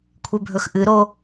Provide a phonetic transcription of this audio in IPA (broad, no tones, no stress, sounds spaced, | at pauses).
kʷʰ e bʱ ɵ x ʔ ɨ ɾ o